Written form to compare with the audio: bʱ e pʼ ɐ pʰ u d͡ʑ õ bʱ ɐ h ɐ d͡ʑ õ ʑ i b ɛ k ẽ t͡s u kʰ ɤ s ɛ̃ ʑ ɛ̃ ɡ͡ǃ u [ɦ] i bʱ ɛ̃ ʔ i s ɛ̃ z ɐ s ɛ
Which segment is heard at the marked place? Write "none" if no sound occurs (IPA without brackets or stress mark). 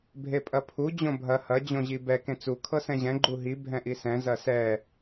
ɦ